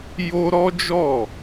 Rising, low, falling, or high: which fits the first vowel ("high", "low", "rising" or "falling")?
high